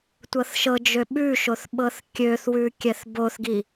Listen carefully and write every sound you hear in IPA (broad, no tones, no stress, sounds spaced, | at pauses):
tʷ ɤ θ ʃ ɤ d͡ʒ ø ɓ ʉ ʃ o θ ɓ ɤ θ kʲ ø θ w ʉ kʲ ɛ θ b o θ ɡ i